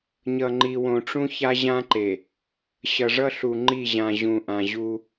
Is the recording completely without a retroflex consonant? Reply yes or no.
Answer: no